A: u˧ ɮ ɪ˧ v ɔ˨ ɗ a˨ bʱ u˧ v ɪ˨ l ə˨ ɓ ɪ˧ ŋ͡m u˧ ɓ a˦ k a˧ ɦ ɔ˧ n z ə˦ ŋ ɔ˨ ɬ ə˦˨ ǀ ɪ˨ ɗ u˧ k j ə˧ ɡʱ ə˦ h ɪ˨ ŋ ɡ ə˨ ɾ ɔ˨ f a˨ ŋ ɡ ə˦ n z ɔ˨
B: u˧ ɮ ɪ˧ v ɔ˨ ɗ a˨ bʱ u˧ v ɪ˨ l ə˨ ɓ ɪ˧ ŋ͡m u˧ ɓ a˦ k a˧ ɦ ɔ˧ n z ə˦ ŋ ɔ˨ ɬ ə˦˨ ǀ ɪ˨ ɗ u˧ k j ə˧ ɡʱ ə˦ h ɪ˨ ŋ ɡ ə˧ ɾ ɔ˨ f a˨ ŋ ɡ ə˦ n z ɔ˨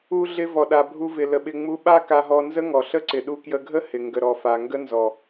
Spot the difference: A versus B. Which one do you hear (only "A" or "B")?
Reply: A